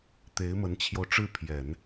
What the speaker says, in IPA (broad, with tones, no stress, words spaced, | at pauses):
t̪e˧˥ɪ̯mə˧˥nt͡ɕʰjo˧ʊ̯ʈ͡ʂɻ̩˥˩ pʰjɛ˨˩˦n